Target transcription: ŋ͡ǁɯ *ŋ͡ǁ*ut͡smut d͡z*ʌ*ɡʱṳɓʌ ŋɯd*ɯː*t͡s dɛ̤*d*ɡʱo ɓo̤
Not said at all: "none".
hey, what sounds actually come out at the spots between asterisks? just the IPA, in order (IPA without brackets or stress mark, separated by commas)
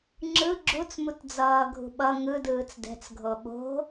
ɡ͡ǁ, ʌː, ɯː, t͡s